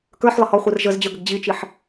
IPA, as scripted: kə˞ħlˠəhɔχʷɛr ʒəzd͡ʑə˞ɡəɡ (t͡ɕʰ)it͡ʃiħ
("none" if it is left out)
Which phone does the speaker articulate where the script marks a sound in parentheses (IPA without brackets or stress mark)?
d͡ʑ